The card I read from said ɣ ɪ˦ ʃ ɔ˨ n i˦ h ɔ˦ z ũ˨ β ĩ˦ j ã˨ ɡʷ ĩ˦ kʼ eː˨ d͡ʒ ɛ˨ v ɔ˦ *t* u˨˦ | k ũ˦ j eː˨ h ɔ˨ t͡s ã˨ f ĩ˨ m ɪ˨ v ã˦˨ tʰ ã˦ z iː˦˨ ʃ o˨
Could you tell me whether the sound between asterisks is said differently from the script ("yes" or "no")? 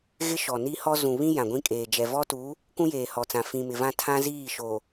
no